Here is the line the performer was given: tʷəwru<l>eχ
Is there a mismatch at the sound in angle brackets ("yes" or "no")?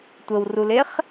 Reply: no